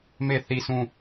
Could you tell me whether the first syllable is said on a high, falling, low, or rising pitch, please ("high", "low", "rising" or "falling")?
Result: falling